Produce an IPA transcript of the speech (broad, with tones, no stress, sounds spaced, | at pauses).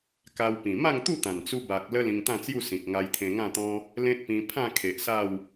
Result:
k a˧ w p ĩ˨˩ m a˥˧ ŋ t̪ u˥˧ t̪ ã˨˩ n t͡s u˧ b a˨ k̚ l ə˦ l ĩ˧ ŋ t̪ ã˥˧ t͡s j u˥˧ s ĩ˨ k̚ ŋ a˧ j t̪ʰ ẽ˧ ŋ ã˥˧ t̪ ɔ̃˦ | l ẽ˦ t̚ p ĩ˧ pʰ ã˥˧ kʰ e˨ ʔ s a˥˧ w